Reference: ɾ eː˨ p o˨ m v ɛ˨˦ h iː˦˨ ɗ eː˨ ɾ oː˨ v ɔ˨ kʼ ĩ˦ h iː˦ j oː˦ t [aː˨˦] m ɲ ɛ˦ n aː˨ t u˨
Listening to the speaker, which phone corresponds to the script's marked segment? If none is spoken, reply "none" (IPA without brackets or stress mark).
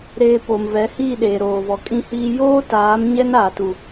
aː˨˦